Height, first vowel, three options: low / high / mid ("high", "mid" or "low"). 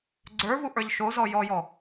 mid